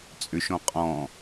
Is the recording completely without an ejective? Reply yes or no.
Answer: no